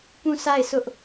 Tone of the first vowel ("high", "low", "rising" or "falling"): falling